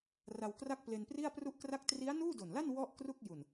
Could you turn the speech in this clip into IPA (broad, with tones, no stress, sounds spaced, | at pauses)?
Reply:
r a˧ w k r a˥˩ k̚ p l e˧ n p r i˥˩ a̯ p r u˥˩ ʔ k r a˥˩ k̚ t r i˦˥ a̯ n uː˥˩ d o˨˩ n l a˥˩ n w ɔ˥˩ ʔ k r u˥˩ k̚ j u˨˩ n